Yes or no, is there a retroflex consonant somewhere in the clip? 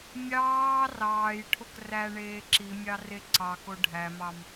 yes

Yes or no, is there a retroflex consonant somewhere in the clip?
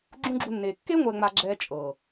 no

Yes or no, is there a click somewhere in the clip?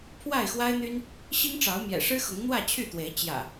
no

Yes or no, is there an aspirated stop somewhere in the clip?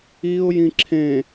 yes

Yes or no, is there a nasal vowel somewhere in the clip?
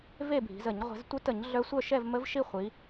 no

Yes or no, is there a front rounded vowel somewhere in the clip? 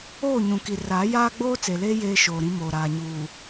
no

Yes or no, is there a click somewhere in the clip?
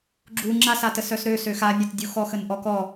yes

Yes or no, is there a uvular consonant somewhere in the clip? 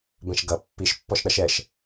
no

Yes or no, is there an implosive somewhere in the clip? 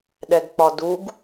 yes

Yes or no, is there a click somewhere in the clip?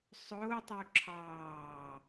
yes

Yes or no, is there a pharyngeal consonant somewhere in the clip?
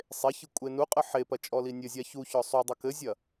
yes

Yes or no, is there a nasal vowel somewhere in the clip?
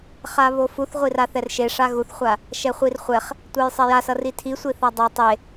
no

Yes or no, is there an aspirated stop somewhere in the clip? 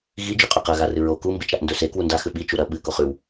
no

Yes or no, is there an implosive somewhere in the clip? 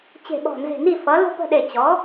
yes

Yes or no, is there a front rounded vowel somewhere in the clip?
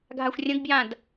no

